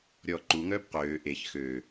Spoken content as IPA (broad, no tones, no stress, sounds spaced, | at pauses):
ɾʲ ɔ ǃ u ŋ œː b q øː ʔ e ç x ø